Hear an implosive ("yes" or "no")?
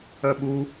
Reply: yes